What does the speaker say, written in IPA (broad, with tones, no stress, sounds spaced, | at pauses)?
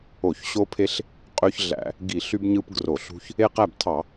o˧˩˧ ç ɕ o˦ pʰ e˦ ɬ | qʼ ø˦ ç ɮ æ̰˧˩˧ | ɡ i˧˩˧ ɬ y˦ b ɲ ɯ˦ p ɡ r o˧˩˧ ɬ ṳ˦ ç | e˦ q æ˥˨ b tʰ ɑ˧˩˧